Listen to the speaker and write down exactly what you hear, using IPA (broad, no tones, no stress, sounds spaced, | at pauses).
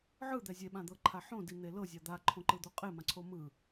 ʕ ɯ d̪ ɛ zʲ e ɓ ã d̪ ɤ ǃʰ a ħ õ d i n̪ e l ɤ zʲ a d̪ a ǃʰ õ ǃ ɯ d̪ o qʼ e m ã ǀʰ o m ɯ